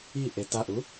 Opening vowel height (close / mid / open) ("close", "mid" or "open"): close